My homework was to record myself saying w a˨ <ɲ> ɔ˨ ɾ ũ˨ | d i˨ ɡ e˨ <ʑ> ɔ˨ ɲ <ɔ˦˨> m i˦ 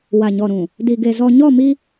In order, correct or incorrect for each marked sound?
correct, incorrect, correct

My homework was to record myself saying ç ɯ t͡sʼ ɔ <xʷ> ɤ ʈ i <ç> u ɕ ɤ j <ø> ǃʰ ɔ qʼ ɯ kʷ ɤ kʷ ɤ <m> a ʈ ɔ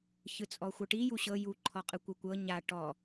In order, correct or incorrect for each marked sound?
correct, incorrect, incorrect, incorrect

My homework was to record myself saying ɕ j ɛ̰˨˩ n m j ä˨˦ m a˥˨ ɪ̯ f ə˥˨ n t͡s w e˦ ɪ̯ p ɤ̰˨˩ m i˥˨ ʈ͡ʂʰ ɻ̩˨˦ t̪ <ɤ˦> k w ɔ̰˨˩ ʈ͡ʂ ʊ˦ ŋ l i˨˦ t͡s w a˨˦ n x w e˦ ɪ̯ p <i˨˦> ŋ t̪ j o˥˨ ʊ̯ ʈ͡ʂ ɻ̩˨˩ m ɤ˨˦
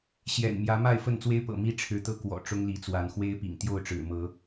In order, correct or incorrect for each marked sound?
correct, incorrect

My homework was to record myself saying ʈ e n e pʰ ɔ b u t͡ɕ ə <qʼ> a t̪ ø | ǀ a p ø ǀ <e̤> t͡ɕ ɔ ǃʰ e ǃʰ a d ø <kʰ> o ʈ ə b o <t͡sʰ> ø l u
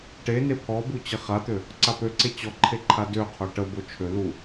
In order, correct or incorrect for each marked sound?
incorrect, incorrect, incorrect, incorrect

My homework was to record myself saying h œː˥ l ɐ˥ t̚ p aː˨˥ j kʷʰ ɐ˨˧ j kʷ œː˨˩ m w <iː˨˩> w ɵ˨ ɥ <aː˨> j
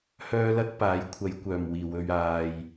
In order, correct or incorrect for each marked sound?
correct, correct

